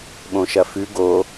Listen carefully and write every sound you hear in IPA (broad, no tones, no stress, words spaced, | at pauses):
ɓõʃɐfʉ ɡo